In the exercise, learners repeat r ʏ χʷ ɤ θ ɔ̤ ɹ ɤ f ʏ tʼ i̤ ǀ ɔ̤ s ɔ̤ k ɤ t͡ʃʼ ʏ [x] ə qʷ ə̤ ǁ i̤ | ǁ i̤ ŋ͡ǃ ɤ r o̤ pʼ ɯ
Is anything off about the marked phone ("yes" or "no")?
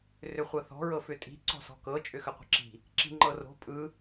no